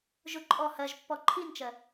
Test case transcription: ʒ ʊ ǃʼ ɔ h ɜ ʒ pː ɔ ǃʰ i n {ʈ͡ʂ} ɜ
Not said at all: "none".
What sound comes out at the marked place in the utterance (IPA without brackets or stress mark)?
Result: t͡ʃ